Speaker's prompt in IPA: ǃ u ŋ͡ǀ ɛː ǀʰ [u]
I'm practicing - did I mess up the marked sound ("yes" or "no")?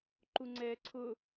yes